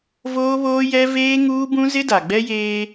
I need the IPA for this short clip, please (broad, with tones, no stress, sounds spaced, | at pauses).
v oː˦ β oː˦ j ɛ˦ v eː˦ ŋ uː˦ b ũ˦ z ɪ˦ d a˨ ɡ͡b ɛ˦ j eː˦